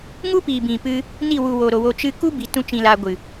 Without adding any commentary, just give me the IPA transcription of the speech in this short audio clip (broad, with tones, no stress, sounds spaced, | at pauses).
ŋ u˦ p iː˨ b ĩ˨ p ɨ˧ | n i˦˨ w u˨ w o˨ ɾ o˨ w o˧ t͡ʃ ɨ˦ k u˦ b i˨ t ũ˦ t͡ʃ ĩ˧ l aː˧ ɡʷ ɨ˨